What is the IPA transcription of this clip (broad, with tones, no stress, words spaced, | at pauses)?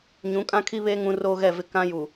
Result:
ɲũ˨˦kʼã˦kʰi˦βeː˦ ŋũ˦roː˦ɣɛ˦˨vɪ˦ kã˦ju˨